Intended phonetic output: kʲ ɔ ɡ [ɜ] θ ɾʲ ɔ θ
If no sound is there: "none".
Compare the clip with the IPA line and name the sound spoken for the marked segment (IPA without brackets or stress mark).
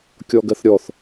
ɜ